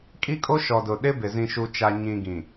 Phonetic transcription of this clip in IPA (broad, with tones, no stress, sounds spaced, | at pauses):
kʼ i˦ kʼ o˦ ʃ ɔ˨ d ʊ˨ ɗ ɪ˦ b ɪ˨ z ĩ˨ ʃ u˨ t͡ʃ a˨ ɲ ĩ˨ ɡ ĩ˨